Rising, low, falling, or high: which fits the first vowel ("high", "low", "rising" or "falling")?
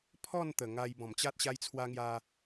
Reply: falling